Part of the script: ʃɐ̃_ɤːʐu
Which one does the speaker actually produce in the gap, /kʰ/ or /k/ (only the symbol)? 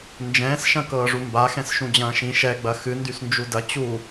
k